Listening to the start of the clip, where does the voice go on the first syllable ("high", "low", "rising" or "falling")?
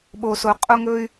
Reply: low